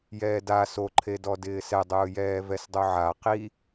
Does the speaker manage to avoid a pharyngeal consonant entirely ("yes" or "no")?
no